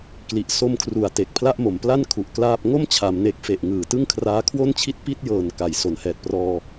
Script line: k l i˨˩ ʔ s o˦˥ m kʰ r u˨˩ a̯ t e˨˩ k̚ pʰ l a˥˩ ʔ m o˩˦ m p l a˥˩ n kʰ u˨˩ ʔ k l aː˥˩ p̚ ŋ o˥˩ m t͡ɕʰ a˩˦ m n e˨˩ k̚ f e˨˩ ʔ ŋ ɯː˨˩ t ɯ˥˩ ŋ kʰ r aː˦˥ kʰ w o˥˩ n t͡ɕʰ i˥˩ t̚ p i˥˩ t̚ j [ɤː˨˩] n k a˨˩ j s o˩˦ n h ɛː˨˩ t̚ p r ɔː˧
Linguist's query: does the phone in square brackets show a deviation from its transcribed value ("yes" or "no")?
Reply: no